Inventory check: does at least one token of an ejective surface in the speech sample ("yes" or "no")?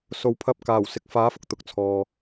no